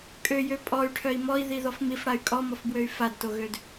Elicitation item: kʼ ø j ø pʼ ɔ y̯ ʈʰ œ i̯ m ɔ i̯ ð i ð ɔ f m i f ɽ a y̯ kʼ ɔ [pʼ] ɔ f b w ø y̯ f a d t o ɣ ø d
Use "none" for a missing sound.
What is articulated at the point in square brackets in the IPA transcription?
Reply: m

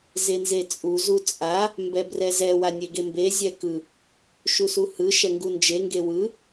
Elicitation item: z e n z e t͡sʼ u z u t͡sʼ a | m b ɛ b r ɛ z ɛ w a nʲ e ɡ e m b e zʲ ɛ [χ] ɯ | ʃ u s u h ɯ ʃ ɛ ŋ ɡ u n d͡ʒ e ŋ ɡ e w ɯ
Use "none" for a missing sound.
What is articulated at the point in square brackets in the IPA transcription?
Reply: k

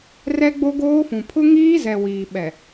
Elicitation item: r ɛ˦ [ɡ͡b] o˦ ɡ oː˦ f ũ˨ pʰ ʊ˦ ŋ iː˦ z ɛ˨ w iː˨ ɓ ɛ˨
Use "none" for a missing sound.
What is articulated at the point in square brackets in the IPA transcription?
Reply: ɡ͡b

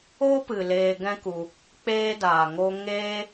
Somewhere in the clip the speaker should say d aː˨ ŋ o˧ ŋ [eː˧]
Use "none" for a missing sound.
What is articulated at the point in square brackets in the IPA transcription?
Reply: eː˦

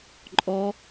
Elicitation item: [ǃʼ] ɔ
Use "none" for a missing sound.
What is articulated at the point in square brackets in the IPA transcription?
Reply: ǃʼ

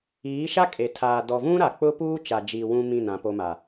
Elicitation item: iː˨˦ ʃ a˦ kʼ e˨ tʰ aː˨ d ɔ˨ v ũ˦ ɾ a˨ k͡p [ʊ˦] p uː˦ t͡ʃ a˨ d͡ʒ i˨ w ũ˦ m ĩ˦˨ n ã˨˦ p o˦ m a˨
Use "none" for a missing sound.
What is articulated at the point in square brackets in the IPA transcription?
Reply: ʊ˦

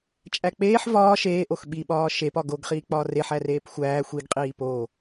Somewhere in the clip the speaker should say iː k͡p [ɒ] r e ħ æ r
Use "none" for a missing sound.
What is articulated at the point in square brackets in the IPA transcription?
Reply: ɒː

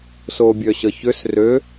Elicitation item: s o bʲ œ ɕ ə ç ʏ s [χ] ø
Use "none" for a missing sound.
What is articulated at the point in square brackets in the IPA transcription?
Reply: r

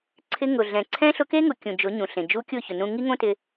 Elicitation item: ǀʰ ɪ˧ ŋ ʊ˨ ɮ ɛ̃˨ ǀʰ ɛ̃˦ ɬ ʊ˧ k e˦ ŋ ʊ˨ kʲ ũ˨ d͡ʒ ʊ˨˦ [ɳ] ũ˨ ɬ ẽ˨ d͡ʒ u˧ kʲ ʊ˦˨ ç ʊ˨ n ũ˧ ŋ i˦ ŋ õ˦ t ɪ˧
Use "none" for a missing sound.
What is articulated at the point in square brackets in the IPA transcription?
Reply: ɲ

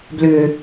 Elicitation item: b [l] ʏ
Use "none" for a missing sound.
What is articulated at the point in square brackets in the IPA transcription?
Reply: l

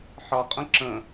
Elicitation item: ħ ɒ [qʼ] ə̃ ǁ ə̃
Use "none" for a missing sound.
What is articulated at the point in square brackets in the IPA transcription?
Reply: qʼ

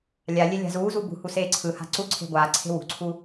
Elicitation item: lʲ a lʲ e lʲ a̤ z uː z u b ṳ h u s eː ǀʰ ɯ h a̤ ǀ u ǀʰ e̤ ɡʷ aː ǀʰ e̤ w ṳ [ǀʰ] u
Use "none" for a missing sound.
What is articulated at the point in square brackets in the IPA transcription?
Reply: ǀʰ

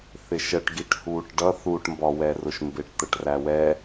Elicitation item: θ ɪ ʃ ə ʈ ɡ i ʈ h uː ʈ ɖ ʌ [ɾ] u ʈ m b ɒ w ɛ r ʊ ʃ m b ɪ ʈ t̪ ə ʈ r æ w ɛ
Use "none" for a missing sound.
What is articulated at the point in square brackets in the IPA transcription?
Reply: θ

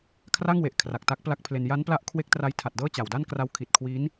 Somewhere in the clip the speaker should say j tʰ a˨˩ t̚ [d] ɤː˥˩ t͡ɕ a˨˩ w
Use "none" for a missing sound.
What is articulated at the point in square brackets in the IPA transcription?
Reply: d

